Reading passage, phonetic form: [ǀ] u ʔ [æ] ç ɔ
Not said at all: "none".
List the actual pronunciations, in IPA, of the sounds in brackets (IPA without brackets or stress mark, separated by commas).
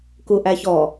k, æ